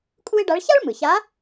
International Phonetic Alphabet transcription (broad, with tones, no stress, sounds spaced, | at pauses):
kʼ u˥ ɪ̯ ɖ a˧˥ ɭ ç a˥ ɭ m ɯ˩ ç a˧˥